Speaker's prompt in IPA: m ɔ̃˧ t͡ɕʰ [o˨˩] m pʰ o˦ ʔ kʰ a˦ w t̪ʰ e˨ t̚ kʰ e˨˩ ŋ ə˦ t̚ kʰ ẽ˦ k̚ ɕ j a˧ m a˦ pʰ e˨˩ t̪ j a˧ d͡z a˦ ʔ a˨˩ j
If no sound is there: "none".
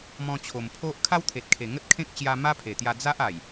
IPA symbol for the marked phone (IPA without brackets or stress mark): o˨˩